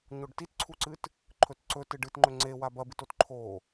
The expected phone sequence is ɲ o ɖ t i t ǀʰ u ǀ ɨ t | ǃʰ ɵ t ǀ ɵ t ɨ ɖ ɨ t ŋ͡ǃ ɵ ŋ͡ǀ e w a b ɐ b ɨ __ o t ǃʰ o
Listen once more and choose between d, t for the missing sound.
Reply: t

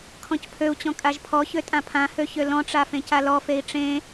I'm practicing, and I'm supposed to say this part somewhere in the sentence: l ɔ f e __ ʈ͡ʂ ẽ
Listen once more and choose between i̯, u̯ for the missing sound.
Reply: i̯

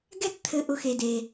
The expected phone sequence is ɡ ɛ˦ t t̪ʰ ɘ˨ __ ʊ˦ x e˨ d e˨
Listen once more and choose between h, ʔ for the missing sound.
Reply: ʔ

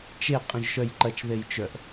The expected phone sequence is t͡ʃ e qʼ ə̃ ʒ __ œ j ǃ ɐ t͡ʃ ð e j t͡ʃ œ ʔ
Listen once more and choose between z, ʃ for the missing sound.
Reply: ʃ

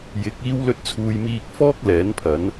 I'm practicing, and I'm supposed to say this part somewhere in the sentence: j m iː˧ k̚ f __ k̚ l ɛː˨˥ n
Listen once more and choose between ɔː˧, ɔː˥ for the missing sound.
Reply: ɔː˥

